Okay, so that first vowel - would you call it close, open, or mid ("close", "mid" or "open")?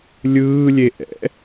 close